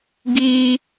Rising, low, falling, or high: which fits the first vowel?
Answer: high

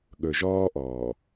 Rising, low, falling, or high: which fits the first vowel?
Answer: low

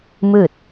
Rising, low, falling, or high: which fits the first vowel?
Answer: falling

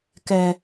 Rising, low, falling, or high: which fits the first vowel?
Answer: high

